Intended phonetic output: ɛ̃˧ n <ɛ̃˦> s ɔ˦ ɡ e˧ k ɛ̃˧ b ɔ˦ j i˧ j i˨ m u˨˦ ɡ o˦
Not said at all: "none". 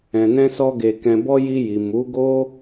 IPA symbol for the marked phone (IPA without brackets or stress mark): ɛ̃˦